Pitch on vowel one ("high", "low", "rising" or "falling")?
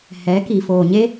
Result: rising